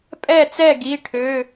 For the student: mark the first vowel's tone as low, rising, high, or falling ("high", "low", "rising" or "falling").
falling